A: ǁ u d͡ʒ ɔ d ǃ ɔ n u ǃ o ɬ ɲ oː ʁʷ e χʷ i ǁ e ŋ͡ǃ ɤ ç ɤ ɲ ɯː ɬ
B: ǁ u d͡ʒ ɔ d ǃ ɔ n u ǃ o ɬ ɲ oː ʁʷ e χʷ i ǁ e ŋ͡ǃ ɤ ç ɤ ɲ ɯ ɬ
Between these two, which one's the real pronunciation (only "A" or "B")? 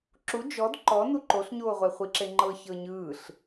A